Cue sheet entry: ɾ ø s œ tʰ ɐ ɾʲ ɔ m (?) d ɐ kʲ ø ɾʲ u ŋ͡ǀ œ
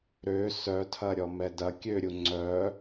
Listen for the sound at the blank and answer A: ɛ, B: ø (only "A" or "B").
A